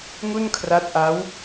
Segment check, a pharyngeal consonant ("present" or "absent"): absent